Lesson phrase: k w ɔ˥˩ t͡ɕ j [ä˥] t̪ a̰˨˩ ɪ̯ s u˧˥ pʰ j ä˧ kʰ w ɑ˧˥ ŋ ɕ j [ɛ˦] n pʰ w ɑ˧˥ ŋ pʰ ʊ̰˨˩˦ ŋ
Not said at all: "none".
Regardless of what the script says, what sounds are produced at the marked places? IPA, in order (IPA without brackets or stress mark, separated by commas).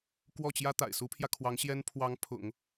ä˥, ɛ˥